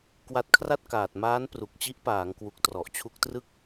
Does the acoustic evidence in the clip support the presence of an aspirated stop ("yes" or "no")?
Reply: yes